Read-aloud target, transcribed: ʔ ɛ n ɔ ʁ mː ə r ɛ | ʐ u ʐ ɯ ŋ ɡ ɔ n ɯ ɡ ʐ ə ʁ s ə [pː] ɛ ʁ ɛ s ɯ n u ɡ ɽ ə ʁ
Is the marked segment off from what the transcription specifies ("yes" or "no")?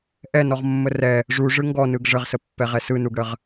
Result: no